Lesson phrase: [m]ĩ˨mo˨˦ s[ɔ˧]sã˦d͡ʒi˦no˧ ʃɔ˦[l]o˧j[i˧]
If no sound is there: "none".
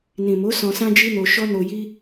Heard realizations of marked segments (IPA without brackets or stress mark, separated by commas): n, ɔ̃˧, n, i˦